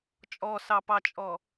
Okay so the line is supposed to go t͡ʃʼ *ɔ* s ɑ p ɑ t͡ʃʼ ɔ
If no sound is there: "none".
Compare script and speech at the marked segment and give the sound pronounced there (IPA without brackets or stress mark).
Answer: ɔ